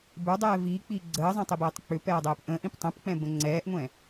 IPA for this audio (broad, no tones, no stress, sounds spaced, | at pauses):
b ə˞ dˤ ɛː v iː k͡p iː ɡ͡ǀ əː zˤ ɛ̃ tˤ i b ɛː tˤ k͡p ʏ p ɛː dˤ ɛː p ʔ ə̃ː ʔ ĩ p tˤ ɛ̃ p k͡p ɛ̃ b ə̃ ŋ͡ǀ ɛː ʔ ŋʷ ɛ̃